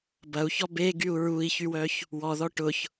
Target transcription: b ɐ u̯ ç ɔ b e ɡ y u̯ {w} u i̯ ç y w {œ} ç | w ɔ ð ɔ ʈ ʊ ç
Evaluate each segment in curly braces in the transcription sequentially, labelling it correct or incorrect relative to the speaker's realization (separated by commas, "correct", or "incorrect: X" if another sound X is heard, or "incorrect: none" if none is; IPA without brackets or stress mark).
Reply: incorrect: ɹ, correct